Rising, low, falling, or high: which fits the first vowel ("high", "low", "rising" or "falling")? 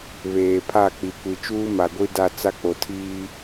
low